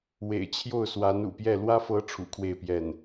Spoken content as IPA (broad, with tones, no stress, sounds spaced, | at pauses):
w ḛ˨˩ ɪ̯ t͡ɕʰ j o˥˩ ʊ̯ s w a˧˥ n ṵ˨˩ p j ɛ˥˩ l w ä˥ f ɤ˧˥ ʈ͡ʂʰ ṵ˨˩ kʰ w e˥˧ ɪ̯ p j ɛ˥˩ n